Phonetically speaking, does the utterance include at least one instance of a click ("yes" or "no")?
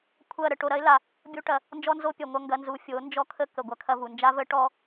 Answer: no